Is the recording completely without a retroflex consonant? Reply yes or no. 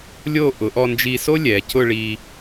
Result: no